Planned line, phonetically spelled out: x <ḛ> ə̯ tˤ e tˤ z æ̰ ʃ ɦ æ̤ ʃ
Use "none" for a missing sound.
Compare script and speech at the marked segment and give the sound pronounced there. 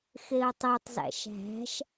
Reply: e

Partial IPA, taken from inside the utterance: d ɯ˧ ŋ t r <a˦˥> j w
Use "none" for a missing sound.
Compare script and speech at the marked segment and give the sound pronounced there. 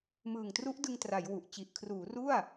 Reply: a˩˦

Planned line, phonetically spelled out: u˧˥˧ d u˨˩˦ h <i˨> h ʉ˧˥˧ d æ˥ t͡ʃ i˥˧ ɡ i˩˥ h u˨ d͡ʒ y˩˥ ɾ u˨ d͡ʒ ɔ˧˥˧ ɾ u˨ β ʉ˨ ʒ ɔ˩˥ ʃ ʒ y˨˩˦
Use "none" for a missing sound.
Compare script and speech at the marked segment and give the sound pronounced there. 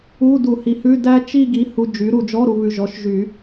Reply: i˩˥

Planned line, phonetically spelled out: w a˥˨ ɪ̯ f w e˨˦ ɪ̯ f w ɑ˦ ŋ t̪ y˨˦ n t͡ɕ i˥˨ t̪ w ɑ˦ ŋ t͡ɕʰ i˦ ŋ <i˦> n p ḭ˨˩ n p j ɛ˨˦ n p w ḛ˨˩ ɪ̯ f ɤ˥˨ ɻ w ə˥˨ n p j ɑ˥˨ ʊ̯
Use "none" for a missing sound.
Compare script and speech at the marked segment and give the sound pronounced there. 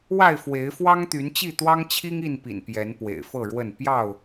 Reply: i˥˨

